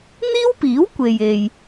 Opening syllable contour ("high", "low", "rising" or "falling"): high